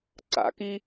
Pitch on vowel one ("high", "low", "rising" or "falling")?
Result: rising